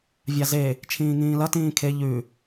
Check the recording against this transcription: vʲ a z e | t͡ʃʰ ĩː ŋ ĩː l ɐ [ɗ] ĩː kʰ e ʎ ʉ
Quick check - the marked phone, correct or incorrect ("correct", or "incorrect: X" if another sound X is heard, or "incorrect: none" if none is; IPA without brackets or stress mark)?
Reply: incorrect: t